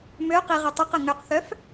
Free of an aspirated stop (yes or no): yes